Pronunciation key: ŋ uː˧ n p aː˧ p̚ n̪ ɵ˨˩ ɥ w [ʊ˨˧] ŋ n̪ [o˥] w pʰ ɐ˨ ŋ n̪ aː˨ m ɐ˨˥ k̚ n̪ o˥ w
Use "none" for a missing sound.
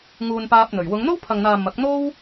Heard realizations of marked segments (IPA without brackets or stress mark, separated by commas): ʊ˨˧, o˥